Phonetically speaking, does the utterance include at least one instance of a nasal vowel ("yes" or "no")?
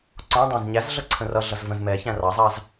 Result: yes